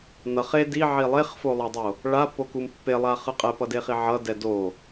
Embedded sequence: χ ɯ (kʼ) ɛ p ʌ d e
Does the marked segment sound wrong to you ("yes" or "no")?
yes